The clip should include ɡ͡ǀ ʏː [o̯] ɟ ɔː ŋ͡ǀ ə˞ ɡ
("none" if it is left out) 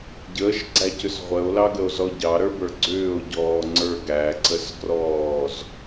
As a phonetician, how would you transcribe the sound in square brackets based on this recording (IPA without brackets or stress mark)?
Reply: o̯